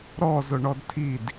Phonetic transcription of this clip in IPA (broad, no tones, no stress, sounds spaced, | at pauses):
ɾ ɔ z ʊ ɳ ɔ d tʰ i d